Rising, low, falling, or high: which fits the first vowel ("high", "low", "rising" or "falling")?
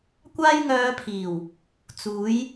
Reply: high